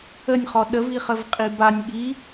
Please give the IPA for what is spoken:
ə nʲ χ ɔ ɗ ə v i χ ə v qʼ i b a nʲ ɠ i

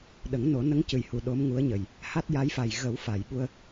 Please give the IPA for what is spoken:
ɗ ə˨˩˦ ŋ n o˨˩˦ n ə˧˥ ŋ c ɨ˨˩ j h u˨˩ ɗ o˧˥ m ŋ u˧˥ ə̯ ɲ ə˨˩ j | h a˦˥ t̚ j a˧˥ j f a˨˩ j ɣ ə˨˩˦ w f a˨˩˨ j ɓ u˧ ə̯

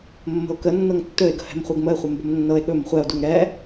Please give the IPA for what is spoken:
mː ə̤ o̯ k ə nː ɤ ŋ tː ɵ e̯ ɡ ə̤ h ɛ̤ m χʷ œ ɡ m ə e̯ χʷ ɛ m b ə̤ m nː ɤ e̯ ɠ ɵ m χʷ ɛ o̯ d u ŋ ɾ ɛ

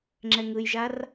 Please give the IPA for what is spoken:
ŋ͡ǁ ɛ ŋ ɯ j ʒ a r

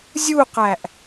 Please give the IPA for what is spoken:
zʲ u q æ ʔ

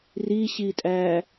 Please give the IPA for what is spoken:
r i ɕ i tʼ æ

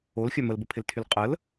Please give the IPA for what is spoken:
o l xʲ œ m ə l b ə pʰ ɪ l tʰ y l qʼ ə l

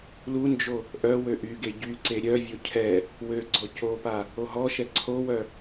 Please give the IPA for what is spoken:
l u n d͡ʒ o | ʔ œ w ø ʔ y ɡ e ɟ y ǀ e ɾʲ œ vʲ o cʰ ɛ | w ø ɡ͡ǀ ɔ c o p a | o ɦ ɔ ʃ ɛ ǀʰ o w œ

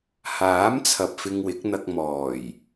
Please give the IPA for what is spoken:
h aː˨˥ m t͡sʰ ɐ˨ p̚ f ɪ˧ ŋ w ɪ˨˥ k̚ n̪ ɐ˧ k̚ m ɔː˨˩ j

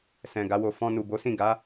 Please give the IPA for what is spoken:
s ɛ̃˨ ɡ a˨˦ w o˧ f ɔ̃˧ n u˨ b o˨˦ s ĩ˦˨ ɡ a˨˦

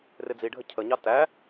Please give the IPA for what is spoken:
r ɪ d͡z i ɖʱ ə cʰ ə ɲ ɑ t æ

